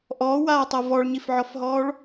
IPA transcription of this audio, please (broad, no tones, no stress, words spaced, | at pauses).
ʔɔːwaːtˤɤ vɔɭɲifʕɔfɦɔːɭ